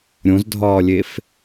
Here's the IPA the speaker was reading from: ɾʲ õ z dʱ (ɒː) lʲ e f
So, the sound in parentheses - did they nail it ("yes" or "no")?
yes